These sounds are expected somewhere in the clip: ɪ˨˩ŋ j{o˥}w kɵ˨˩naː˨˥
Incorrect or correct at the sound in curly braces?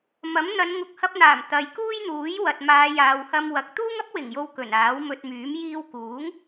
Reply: incorrect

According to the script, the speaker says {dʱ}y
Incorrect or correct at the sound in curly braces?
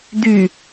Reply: incorrect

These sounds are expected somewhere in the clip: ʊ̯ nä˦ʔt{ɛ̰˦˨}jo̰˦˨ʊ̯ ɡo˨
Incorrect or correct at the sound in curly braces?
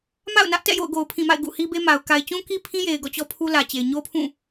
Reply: correct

